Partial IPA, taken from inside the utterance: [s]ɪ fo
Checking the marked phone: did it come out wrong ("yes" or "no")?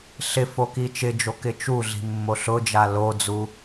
yes